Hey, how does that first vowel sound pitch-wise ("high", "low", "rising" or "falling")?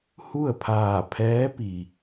falling